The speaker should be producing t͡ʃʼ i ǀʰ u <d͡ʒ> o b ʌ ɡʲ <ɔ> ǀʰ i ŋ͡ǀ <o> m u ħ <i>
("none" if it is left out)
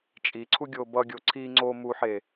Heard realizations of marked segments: ɡʲ, o, o, e

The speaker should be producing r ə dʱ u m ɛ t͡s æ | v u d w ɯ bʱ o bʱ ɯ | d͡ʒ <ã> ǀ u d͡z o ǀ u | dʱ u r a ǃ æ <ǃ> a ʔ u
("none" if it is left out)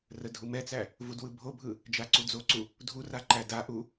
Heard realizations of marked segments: a, d

